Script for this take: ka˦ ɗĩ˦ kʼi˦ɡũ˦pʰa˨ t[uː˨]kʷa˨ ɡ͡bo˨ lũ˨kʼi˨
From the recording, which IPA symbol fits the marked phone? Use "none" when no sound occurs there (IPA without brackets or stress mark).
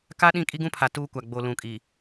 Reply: uː˦